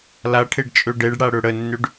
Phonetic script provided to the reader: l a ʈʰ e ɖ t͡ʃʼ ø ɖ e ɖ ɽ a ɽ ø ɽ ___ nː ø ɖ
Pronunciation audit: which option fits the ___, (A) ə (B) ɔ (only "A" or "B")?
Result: A